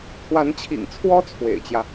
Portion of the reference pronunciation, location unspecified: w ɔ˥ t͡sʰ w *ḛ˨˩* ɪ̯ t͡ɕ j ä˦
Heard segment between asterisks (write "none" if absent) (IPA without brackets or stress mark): ḛ˨˩